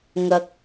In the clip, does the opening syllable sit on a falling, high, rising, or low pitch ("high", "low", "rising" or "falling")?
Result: low